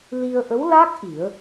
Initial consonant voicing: voiced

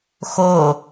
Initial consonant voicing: voiceless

